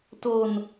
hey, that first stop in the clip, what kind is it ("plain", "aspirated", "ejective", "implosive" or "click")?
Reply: plain